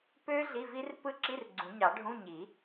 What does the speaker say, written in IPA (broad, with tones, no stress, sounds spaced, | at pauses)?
p ø˦˥ ɮ i˧˥˧ v i˦˥ r p ɯ˦˥ ǁ i˧˥˧ r ɡ͡ǀ ũ˨˩˦ ɲ ɑ˨˩˦ ɖʱ ũ˧˥˧ ɲ i˨˩˦